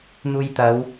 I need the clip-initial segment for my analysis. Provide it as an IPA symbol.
n̪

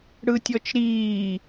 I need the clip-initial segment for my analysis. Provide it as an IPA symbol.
ɽ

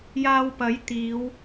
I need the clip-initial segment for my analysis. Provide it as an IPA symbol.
j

